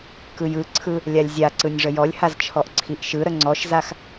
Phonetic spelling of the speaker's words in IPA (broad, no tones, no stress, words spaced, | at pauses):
kɯjɯǀʰɯ | lʲalʲzʲaǀɯnʲ ʐəjɔlʲhaz t͡ʃʰɔʔǀʰiʔʃɯɾə ŋ͡ǀɔʃzax